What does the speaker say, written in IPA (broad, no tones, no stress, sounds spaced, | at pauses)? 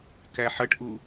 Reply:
k æ ħ ʌ ʈ ʔ u